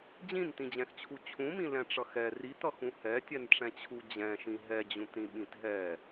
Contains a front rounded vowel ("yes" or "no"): no